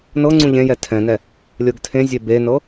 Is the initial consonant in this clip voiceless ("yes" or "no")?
no